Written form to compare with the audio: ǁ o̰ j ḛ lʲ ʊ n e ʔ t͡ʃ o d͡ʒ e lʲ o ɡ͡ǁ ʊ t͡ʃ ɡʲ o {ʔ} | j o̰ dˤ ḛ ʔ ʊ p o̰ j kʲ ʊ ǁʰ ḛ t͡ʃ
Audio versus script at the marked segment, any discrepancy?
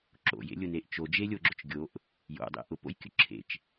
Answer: no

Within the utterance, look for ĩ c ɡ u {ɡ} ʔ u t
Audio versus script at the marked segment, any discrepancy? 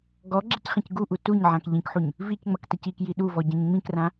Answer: yes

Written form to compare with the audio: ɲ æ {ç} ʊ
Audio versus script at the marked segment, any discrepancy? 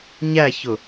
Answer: no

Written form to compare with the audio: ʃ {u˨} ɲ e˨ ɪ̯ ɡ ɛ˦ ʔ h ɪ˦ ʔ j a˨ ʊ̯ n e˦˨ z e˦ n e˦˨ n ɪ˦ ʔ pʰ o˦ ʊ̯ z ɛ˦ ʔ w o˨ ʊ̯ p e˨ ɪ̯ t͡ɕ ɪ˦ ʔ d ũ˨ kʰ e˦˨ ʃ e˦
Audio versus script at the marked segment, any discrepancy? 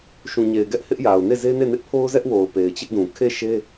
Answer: yes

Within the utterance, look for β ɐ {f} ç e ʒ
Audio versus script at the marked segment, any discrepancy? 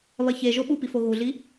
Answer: yes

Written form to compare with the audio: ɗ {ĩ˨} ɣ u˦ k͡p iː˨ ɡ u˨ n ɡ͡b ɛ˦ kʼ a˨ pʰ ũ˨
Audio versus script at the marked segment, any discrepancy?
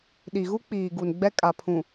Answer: yes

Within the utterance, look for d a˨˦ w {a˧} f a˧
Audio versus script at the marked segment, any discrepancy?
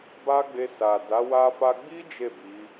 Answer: no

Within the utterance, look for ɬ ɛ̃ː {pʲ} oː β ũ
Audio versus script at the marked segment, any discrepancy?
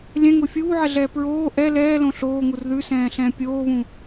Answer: no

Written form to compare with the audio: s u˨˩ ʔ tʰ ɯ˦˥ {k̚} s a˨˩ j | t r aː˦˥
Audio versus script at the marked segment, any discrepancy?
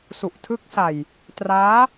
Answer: no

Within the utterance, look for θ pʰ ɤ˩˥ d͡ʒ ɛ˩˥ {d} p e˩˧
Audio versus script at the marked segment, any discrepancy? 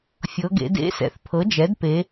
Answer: no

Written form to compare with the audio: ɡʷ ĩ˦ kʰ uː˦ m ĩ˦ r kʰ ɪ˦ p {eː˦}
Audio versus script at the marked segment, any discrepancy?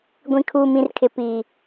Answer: yes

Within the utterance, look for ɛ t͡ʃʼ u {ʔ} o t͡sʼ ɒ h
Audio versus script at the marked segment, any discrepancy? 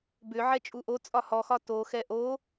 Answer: no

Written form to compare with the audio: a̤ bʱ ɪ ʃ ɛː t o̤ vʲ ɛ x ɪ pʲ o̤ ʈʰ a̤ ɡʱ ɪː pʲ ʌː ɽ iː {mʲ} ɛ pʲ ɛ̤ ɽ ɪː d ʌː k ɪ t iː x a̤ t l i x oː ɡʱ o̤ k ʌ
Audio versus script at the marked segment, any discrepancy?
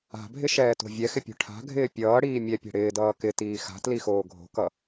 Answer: no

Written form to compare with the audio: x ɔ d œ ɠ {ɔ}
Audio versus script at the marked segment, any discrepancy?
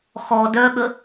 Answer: yes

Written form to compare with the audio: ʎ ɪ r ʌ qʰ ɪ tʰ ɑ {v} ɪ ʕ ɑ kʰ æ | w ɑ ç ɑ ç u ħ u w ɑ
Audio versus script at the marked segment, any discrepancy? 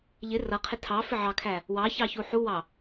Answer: yes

